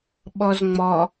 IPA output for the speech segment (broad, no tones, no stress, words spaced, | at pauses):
ɓɔzŋ͡mɔ